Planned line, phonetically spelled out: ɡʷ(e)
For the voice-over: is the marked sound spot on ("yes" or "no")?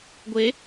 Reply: yes